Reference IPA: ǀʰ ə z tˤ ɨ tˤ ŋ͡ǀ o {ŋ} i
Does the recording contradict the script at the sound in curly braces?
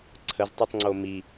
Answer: yes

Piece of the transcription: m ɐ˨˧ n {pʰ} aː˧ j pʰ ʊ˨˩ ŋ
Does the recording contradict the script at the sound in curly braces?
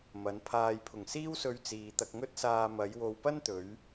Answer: no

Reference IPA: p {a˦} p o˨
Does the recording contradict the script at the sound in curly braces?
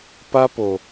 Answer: no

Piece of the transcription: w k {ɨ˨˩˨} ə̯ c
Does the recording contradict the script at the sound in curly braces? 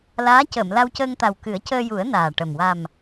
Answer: yes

